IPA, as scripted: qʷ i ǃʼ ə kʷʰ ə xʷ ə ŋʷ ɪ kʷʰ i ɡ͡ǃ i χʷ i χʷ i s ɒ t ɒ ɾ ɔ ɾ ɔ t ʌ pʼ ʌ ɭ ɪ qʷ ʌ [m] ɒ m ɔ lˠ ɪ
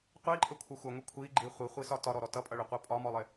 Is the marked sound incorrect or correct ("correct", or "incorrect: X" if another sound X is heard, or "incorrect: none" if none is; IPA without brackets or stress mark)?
incorrect: pʼ